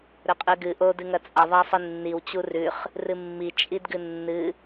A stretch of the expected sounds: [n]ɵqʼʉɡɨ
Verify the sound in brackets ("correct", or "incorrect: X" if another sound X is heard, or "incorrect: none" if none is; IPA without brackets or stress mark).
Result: incorrect: ɾ